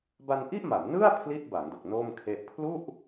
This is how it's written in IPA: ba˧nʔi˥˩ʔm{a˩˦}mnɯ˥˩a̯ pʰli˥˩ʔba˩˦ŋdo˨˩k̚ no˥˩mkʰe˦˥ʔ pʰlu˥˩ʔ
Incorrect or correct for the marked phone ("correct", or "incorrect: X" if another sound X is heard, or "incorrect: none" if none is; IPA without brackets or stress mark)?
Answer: correct